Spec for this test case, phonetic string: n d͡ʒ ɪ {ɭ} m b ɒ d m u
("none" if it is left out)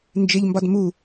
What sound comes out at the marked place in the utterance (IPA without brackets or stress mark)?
ʎ